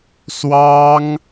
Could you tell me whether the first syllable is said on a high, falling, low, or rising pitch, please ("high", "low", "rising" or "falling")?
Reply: high